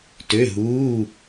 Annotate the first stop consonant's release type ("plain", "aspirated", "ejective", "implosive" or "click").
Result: plain